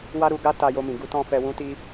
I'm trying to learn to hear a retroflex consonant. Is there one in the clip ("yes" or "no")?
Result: no